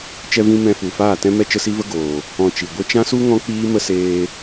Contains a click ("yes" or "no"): no